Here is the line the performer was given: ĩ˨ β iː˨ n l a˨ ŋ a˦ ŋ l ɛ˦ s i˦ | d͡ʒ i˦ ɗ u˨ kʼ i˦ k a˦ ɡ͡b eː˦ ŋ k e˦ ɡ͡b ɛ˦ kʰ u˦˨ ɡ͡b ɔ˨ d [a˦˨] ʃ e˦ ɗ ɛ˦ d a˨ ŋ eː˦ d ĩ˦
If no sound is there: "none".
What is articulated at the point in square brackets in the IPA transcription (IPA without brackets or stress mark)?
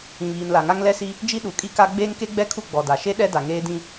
a˨